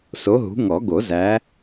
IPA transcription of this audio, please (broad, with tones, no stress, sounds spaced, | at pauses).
s o˨˦ ɦ ṳ˨˦ ŋ ɔ˨˩˦ ɡ o˨˩˦ z æ˨˦